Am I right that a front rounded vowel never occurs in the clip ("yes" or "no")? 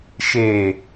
yes